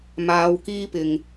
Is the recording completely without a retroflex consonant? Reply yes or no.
yes